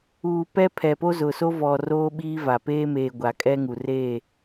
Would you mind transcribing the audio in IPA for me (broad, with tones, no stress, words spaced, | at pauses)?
uː˨pɛ˦pʰɛ˨ po˦zʊ˨so˦vɔ˨ roː˦ɓiː˦va˨ peː˦meː˨ ɡʷa˨kʼɛ˦ŋu˨ reː˦˨